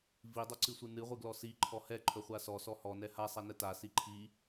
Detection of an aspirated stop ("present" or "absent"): present